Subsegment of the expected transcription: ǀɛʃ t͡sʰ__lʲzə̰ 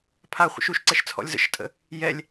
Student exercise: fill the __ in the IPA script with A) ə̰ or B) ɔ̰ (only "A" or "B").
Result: B